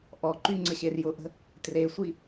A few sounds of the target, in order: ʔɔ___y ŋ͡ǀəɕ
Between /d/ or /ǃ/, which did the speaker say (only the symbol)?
ǃ